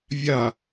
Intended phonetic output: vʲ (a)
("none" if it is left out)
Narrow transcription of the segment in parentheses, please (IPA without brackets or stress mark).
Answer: a